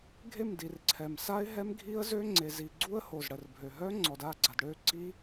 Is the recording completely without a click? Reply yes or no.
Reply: no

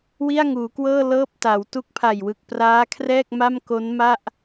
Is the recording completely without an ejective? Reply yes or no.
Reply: yes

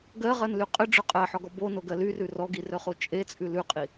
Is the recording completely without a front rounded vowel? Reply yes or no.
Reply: no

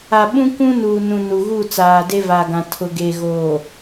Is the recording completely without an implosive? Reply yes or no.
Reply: no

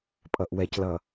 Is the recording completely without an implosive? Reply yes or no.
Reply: yes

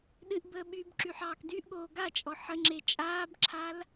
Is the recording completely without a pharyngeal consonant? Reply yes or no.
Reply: no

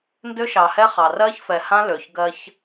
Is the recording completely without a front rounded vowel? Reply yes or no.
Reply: no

